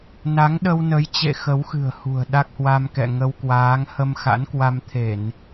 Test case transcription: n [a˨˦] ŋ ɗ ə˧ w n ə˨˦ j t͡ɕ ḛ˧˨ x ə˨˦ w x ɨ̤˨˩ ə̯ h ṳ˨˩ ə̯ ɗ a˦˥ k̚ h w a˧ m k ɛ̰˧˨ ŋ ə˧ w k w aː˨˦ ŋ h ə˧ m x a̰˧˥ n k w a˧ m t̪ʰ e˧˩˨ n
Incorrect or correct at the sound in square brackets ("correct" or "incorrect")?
correct